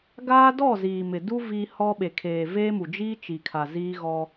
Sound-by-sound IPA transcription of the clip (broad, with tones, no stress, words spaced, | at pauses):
ɡaː˦dɔ˦˨ziː˨mɪ˨ du˦ vi˦hɔ˦ ɓe˨kʰeː˨veː˦ mu˨d͡ʒiː˦t͡ʃi˨kʰa˨ ziː˦ɣɔ˦